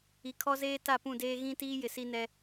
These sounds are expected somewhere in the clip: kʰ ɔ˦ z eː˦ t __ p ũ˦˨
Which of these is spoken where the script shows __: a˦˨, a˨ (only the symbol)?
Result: a˦˨